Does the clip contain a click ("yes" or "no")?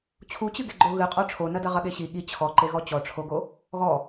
yes